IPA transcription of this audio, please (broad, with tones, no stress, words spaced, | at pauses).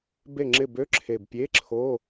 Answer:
be˥˨ŋ͡ǁɪ˥˨ bø˧˥˧ǁʰe˨˩bpʲe˧˥˧ǁʰo˧˥˧